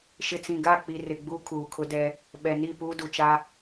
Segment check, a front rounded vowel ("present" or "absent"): absent